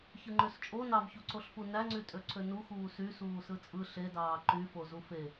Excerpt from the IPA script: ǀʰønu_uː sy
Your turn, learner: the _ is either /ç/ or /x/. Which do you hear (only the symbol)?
x